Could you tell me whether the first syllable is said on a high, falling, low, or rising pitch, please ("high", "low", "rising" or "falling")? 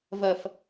low